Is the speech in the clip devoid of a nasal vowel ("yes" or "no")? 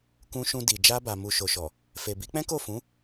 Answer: no